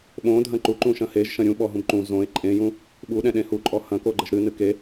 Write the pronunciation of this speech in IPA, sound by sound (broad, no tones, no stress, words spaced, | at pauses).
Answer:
ɓõdʱɐ̃ ǃuǃũʃɐ̃ heʒʃɐ̃ ɾʲũɓɔɦũb ǃũ zõe̯ ǃʼẽjũ | ɓuɗɛ̃ɗẽ huǃʼɔ hɐ̃koɡ͡ǃɘʒ ɾɨnɨ ke